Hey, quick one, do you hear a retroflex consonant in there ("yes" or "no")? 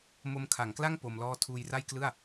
no